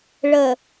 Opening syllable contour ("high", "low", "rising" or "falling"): low